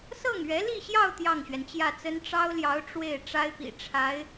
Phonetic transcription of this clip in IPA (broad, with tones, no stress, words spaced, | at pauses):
sɤ˥˩ŋɥɛ˧˥li˥˧ɕjɑ˥˧ʊ̯ t̪jɑ˥˩ŋɕɥɛ˩nt͡ɕjä˥˩t͡sə˥n ʈ͡ʂɑ˥ʊ̯ljɑ˧˥ʊ̯ ʈ͡ʂwe˥˩ɪ̯ ʈ͡ʂa˥ɪ̯pḭ˨˩ ʈ͡ʂʰa˧˥ɪ̯